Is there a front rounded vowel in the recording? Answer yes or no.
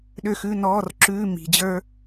yes